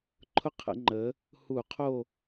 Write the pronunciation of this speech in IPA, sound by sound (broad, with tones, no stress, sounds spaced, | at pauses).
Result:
ǃʰ ʊ˥ qʰ ə̰˩˥ ŋ͡ǃ ə˩˥ | h u˧˩˧ qʰ o˦˨